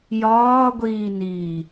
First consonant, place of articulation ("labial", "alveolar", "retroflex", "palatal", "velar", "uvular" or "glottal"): palatal